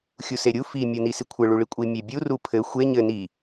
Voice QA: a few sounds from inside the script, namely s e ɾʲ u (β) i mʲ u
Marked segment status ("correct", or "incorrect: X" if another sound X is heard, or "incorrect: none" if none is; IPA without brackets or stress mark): incorrect: f